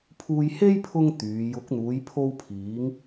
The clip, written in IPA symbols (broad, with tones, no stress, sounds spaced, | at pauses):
pʰ uː˧ j h e˥ j pʰ ʊ˥ ŋ t̪ yː˨˧ j ʊ˨˥ k̚ n̪ uː˨˧ j pʰ o˧ w pʰ iː˨˧ ŋ